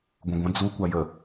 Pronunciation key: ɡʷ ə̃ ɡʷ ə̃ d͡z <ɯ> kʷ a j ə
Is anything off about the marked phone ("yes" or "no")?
yes